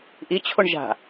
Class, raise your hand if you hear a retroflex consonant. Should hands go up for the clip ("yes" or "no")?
yes